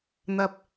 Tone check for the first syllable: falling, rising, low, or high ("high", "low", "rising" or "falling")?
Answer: low